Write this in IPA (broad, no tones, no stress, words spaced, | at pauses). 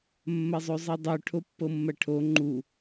mːɐzˤozˤɤdˤo ʈʰopːɤmːɐʈʰo ŋ͡ǃu